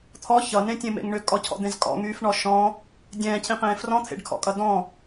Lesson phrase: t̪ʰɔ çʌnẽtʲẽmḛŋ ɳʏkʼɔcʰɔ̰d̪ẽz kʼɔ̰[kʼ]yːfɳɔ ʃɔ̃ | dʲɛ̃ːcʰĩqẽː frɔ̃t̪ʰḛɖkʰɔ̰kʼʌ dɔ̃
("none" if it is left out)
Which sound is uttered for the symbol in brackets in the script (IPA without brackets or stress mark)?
ŋ